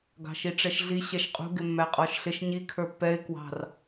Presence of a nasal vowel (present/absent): absent